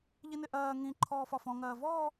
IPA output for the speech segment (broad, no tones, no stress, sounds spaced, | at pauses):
ʎ i n ɪ ʔ ɜː ŋ ĩ ǃʰ ɔː f ɒ f ɔ̃ ŋ ɜː v ɔː